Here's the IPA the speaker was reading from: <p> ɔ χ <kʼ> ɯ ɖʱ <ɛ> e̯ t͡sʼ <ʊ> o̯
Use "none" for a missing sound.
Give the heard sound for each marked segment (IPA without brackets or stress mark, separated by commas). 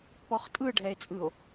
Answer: p, tʼ, ɛ, ɯ